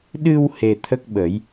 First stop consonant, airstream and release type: implosive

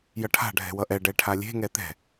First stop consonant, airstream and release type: aspirated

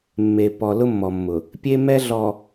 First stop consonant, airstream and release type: plain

